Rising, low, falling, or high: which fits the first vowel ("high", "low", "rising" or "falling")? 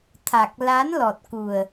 low